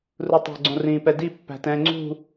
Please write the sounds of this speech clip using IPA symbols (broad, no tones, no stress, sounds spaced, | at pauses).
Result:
r u tˤ ɛ̤ ɡ͡ǀ õ r ĩː p ɛ d i pː æ̤ t ɛ̃ː ŋ͡ǀ ṳ